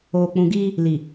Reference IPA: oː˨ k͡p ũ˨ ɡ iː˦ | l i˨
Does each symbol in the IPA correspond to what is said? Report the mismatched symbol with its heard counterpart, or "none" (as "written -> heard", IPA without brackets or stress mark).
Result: none